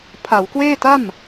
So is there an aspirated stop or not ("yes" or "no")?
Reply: yes